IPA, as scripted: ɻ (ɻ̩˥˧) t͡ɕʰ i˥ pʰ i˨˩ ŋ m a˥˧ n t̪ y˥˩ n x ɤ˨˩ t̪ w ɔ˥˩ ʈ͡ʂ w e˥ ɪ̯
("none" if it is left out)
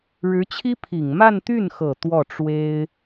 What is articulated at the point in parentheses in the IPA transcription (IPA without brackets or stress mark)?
ɻ̩˧˥